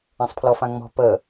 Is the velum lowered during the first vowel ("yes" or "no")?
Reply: yes